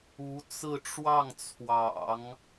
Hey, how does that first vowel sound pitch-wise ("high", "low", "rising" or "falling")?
rising